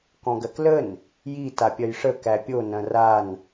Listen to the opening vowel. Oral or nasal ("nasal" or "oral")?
nasal